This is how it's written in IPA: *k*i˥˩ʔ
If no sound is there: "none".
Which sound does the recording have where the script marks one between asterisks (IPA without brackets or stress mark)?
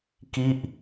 k